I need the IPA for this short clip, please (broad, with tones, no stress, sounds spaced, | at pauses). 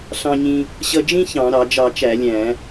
ɬ ɑ̃˧ ɲ ĩ˧ | ɕ ʌ˧ d͡ʒ ĩ˥ ç ɑ̃˧˩˧ ɾ ɑ˧˩˧ d͡ʒ ɑ˧˩˧ t͡ʃ æ˧˩˧ lʲ æ̃˧˩˧